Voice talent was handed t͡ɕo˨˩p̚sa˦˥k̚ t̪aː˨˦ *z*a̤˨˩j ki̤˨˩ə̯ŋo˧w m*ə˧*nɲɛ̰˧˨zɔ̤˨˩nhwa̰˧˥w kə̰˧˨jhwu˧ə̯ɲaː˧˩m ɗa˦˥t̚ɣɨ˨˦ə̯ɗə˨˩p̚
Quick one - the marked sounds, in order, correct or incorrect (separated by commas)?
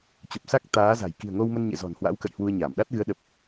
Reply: correct, correct